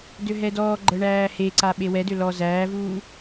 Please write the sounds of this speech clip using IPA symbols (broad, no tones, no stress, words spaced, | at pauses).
døɦɛdɔːɡ͡ǃɤ ɳæːheǀa ɓewɛdø lɔ zæːvuː